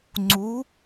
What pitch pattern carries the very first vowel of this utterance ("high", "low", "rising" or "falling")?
rising